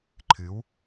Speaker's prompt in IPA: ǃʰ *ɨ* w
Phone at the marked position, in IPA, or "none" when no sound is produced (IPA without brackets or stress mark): ɨ